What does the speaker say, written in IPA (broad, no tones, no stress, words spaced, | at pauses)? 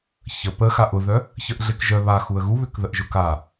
çə pə xaʔʊðœ | çəʔɮekʒœ βaxuə̯ ɣuβʏkðəʔʒʊk a